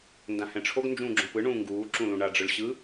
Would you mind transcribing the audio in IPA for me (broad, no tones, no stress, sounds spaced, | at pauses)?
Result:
n d ã h ɛ̃ ʈ͡ʂʰ o ɡ n d͡ʒ ũː ɡ͡ǁ õ p ɯ ɳ ũː ŋ ɡ uː ǁ ũ l ũ ɳ a ɖ͡ʐ ɯ ɭ ɕ ɯ